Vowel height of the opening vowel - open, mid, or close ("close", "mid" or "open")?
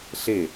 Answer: mid